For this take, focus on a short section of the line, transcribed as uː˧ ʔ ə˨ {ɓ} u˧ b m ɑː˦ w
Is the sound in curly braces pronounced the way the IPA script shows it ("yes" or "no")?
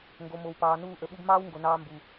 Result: yes